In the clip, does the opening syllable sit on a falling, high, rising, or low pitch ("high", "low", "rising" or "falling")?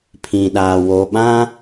low